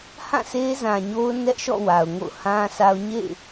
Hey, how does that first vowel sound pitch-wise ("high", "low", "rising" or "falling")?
falling